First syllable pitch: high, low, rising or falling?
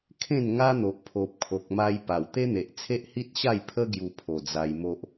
falling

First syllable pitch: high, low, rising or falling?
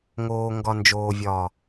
low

